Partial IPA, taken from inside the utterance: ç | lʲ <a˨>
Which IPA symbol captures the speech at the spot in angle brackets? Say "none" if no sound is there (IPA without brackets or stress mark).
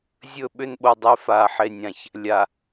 a˨